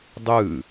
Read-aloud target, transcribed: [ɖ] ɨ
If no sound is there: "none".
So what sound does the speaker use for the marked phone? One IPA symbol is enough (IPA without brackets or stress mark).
dˤ